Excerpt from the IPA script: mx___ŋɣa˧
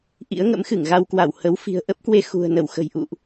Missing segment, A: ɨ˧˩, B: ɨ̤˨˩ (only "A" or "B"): A